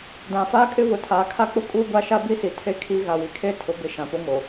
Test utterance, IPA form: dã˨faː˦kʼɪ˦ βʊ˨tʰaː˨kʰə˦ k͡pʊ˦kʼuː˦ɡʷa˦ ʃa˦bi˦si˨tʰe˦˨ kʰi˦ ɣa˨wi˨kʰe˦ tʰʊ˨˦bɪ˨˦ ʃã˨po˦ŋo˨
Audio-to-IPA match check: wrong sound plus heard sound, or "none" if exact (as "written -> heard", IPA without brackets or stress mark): ə˦ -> a˦